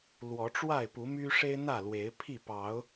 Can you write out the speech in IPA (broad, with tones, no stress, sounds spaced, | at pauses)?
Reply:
l w ɔ˨˦ ʈ͡ʂ w a˥˨ ɪ̯ p u˨˦ m y˦ ʂ e˦ ɪ̯ n̪ ä˥˨ l w e˨˦ ɪ̯ pʰ i˥˨ p ɑ˨˦ ʊ̯